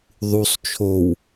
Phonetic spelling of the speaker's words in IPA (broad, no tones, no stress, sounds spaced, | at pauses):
ðˤ u sˤ t͡ʃʰ o w